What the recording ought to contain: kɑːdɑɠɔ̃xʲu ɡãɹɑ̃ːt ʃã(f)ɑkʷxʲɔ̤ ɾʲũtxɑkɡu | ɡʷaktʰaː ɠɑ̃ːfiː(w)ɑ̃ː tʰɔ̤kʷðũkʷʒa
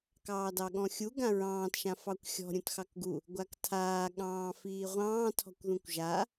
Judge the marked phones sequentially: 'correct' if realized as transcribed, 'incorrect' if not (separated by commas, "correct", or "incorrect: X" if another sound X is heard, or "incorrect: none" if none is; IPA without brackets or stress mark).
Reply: correct, incorrect: ʁʷ